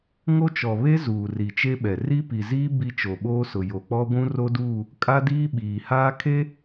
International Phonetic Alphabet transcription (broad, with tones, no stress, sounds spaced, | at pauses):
ŋ o˦ t͡ʃ ɔ˨ β e˦ z uː˨ r i˨ t͡ʃ e˦ ɓ ɛ˨ r i˦ p i˨ z iː˦ b i˦ t͡ʃ o˨ ɓ oː˦ s ʊ˨ j o˨ k͡p ɔ˦ ɡʷ ũ˦ r o˦ d uː˦˨ | kʼ a˦ d iː˦ ɓ iː˨ h aː˦ kʰ e˦